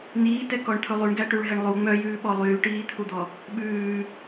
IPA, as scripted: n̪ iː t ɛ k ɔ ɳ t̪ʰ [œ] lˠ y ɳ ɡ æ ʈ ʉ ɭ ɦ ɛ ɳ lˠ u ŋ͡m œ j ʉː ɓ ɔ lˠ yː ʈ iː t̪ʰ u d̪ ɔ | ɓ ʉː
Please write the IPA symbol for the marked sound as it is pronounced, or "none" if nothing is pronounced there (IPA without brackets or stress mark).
ɵ